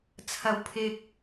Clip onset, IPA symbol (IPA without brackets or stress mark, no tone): t͡sʰ